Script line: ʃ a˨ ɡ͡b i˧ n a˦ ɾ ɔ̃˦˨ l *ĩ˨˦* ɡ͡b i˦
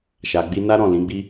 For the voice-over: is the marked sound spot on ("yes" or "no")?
yes